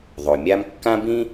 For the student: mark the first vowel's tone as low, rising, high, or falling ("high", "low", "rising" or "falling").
low